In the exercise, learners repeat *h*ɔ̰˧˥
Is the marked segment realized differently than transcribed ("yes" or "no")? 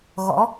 yes